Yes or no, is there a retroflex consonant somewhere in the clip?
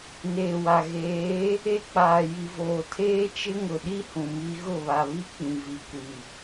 no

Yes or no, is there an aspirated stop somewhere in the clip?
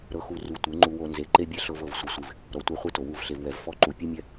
no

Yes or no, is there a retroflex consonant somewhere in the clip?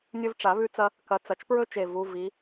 yes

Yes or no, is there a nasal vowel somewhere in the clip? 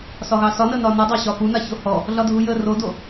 no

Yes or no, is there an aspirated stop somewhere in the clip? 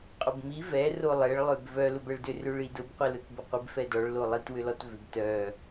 no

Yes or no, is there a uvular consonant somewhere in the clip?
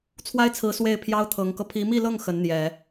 no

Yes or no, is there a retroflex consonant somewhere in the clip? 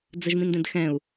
no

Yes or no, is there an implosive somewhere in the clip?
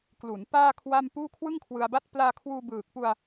no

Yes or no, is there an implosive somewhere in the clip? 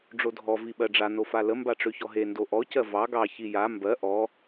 yes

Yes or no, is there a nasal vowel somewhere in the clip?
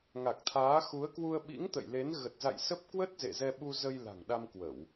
no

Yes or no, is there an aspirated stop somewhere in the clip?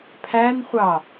yes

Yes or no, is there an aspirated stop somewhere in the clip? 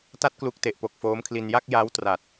yes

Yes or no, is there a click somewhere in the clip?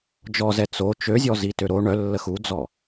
no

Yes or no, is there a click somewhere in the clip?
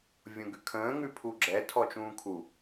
yes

